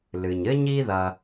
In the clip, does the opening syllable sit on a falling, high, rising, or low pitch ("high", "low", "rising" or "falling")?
low